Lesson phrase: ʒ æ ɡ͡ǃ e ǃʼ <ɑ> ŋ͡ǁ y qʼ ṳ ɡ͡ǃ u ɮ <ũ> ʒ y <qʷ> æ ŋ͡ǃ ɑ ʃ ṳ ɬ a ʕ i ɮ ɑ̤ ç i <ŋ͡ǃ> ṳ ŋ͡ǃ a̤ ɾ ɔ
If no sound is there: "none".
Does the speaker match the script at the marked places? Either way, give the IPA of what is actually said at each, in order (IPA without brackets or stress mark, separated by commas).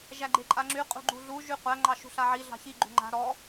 a, u, qʷ, ɡ͡ǃ